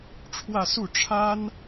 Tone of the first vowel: falling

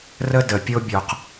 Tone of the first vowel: high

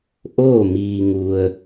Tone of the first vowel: falling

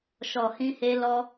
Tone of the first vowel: low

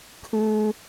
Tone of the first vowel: high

